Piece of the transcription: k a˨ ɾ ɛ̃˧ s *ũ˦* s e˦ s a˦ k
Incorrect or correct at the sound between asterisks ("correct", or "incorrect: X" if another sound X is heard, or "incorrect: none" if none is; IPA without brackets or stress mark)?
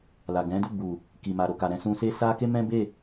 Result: incorrect: ũ˧